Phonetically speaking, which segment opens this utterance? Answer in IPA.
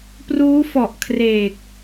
p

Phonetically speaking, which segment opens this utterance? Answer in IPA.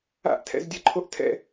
a̰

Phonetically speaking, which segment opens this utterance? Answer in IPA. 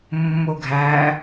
mː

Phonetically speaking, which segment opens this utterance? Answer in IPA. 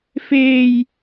f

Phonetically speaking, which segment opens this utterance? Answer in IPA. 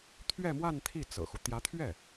t̪ʰ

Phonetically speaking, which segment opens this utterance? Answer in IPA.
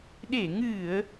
ɗ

